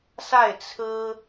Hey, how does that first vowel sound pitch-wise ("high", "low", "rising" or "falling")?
falling